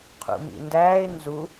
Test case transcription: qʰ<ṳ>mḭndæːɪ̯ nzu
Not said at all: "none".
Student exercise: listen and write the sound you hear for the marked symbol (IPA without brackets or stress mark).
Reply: ṵ